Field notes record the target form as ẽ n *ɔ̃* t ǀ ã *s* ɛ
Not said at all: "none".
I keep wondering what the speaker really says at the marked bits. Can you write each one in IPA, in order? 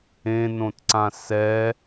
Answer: õ, s

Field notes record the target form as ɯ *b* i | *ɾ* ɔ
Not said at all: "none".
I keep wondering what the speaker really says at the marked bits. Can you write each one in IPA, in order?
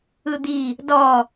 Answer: d̪, d

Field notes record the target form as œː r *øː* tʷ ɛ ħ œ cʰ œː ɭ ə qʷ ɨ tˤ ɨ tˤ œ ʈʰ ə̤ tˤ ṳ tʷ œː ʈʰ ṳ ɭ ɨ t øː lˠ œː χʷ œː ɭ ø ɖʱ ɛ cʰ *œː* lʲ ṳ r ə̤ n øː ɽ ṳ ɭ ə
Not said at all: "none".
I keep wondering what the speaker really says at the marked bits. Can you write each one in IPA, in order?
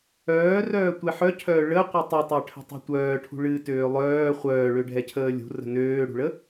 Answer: œː, əː

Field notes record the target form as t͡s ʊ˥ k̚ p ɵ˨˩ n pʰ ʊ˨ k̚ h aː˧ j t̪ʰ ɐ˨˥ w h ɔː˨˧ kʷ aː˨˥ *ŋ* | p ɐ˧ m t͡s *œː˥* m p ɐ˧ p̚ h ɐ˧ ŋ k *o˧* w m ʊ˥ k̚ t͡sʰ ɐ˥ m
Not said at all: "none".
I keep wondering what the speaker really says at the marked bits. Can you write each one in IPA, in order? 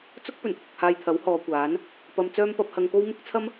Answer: n, œː˥, o˥

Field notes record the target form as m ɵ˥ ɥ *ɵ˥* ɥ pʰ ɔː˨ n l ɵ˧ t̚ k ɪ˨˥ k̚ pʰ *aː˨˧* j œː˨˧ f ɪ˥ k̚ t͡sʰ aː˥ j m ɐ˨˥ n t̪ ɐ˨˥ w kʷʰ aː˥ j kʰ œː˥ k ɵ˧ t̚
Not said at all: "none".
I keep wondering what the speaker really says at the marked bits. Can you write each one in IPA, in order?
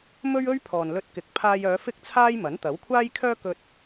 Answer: ɵ˥, aː˧

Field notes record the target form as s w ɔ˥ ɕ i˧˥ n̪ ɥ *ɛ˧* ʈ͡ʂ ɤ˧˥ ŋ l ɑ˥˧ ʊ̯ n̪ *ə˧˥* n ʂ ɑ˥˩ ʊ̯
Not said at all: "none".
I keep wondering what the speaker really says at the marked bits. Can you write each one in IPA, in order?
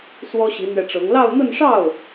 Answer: ɛ˧, ə˥˧

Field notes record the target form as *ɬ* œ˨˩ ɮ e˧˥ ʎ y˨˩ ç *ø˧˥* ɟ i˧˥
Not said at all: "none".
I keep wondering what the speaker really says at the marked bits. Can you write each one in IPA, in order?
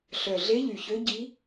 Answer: ɬ, ø˧˥

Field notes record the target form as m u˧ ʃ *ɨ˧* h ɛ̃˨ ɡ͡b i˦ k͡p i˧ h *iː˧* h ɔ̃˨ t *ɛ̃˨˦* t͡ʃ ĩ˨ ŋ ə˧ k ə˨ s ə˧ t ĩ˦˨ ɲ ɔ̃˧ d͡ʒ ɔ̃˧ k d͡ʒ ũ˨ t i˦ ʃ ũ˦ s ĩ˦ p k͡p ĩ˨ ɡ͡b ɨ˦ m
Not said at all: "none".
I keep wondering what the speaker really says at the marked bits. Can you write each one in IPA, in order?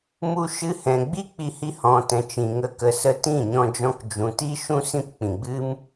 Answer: ɨ˧, i˧, ɛ̃˨

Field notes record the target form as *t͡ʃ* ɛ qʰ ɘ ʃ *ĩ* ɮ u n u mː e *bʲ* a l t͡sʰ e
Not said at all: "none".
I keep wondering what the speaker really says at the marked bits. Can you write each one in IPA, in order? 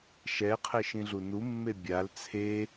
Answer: ʃ, ĩ, bʲ

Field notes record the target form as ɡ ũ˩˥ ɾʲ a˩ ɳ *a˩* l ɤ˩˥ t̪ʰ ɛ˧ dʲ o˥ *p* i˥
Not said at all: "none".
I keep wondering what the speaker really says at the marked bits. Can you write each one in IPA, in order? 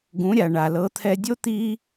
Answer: a˩, t̪

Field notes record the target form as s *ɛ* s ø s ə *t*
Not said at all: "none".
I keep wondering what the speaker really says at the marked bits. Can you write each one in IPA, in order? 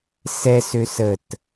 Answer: ɛ, t

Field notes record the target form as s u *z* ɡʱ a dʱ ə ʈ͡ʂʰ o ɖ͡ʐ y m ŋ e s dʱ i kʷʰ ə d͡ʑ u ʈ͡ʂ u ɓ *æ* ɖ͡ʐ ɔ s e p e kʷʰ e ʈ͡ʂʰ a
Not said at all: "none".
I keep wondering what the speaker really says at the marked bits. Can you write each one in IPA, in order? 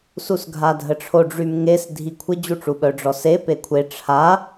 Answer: s, œ

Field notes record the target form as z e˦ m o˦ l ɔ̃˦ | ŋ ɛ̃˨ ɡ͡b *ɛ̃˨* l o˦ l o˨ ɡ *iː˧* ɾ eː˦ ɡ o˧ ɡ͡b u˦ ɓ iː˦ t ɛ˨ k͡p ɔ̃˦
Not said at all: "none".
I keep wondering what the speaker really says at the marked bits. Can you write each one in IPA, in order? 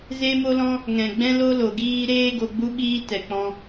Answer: ɛ̃˦, iː˦

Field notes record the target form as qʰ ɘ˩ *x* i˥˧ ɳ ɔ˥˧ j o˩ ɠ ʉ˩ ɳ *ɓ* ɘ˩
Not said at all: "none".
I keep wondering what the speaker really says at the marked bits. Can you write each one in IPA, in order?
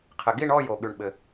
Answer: ɡ, ɓ

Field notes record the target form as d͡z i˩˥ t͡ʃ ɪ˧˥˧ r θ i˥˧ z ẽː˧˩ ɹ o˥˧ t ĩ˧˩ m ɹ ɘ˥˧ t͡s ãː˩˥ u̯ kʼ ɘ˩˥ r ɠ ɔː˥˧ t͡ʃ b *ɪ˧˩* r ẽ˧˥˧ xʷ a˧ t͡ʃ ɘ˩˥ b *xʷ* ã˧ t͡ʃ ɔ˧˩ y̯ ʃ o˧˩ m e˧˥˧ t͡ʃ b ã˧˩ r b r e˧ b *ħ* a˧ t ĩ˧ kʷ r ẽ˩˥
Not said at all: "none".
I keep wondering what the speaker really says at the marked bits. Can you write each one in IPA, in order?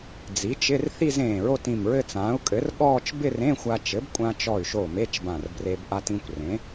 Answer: ɪ˥˧, kʷʼ, ʔ

